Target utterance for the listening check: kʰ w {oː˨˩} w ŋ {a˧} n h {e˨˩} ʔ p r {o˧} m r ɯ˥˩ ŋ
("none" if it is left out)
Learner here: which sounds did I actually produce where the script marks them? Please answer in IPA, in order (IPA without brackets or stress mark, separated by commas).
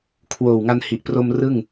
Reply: oː˨˩, a˧, i˨˩, o˧